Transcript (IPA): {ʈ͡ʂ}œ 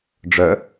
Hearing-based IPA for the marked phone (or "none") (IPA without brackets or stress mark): ɖ͡ʐ